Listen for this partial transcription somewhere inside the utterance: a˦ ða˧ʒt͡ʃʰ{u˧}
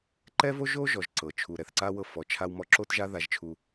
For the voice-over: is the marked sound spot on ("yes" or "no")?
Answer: yes